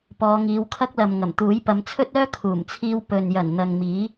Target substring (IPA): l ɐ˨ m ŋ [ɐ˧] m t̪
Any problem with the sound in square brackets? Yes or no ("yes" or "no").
yes